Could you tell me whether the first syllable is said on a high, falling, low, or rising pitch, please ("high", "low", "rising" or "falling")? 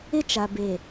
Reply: high